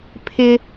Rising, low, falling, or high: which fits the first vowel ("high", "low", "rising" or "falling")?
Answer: high